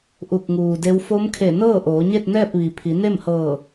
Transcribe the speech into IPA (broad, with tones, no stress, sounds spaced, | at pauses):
ʔ u˧˩ k̚ ŋ uː˩ d e˧˥ w f o˧˥ m kʰ e˧˩ n ɤː˥˨ ʔ oː˩˧ ɲ e˥˨ t̚ n ɛː˥˨ p̚ ʋ i˩˧ pʰ i˩˧ n e˥˨ m h ɤː˧˩